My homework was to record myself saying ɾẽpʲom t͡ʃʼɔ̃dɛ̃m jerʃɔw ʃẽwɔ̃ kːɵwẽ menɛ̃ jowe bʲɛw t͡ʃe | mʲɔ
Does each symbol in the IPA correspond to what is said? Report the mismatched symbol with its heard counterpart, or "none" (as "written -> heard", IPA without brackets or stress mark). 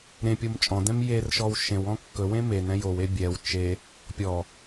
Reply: mʲ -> pʲ